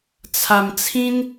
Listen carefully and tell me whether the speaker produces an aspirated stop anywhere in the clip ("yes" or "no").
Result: yes